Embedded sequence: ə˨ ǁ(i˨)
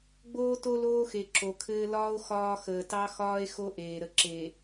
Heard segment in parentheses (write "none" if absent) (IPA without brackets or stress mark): e˨